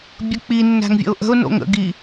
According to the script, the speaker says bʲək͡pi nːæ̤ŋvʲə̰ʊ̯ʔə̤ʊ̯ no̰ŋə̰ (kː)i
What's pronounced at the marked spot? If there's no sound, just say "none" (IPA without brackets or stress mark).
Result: ɡ